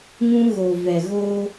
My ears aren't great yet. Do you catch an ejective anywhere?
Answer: no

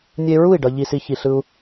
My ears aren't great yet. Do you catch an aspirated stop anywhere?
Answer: no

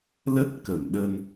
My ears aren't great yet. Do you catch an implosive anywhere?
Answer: yes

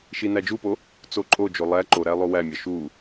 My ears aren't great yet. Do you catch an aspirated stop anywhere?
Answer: no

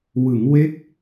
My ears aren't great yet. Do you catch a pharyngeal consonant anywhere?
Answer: no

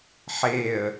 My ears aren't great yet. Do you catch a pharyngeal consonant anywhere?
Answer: yes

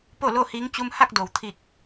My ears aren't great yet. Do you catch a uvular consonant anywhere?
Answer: no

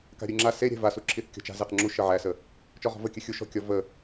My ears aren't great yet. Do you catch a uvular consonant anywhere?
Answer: yes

